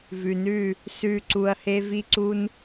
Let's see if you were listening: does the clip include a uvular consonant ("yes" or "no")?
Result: no